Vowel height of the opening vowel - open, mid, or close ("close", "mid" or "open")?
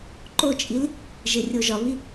mid